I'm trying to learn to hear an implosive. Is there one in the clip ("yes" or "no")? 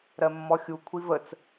no